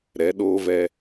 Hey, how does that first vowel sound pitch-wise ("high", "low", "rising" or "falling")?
rising